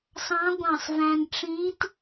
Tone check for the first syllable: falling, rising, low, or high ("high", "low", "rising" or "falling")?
rising